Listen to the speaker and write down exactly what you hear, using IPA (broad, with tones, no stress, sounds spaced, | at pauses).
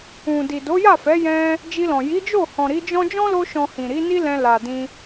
ũ˨ d i˨ d o˨˦ j a˦˨ f ɛ˨˦ j ɛ̃˧ | d͡ʒ i˧ l ɔ̃˨ j i˨˦ d͡ʒ o˦˨ h ɔ̃˨ ɾ i˨˦ d͡ʒ ɔ̃˦ d͡ʒ ɔ̃˦ l o˧ ʃ ɔ̃˨ h ĩ˨ ɾ i˨˦ n i˦ l ɛ̃˧ l a˨ d ĩ˧